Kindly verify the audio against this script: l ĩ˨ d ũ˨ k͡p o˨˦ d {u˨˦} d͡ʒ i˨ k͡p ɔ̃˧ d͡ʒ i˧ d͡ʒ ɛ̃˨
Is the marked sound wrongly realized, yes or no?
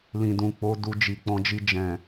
yes